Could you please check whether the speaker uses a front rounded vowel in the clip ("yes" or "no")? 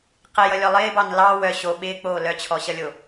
yes